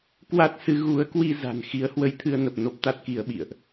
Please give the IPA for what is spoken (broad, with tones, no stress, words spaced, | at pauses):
kwa˦˥t̚sɨ˨˦ ɣu˨˦ə̯kwi˧ za̤˨˩nxi˨˦ə̯hwə˧j t̪ʰɨ˧ə̯nə˨˩p̚no˦˥p̚ t̪a˦˥t̚ki˧ə̯ɓḭ˧˨ə̯ʔ